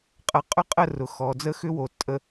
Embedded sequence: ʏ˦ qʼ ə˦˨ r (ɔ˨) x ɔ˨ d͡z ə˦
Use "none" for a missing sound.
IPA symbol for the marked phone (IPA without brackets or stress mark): ʊ˨